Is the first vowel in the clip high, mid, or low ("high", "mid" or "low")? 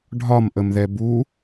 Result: low